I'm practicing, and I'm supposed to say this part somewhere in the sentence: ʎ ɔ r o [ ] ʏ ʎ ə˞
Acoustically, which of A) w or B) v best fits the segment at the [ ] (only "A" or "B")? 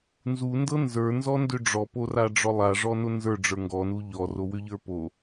A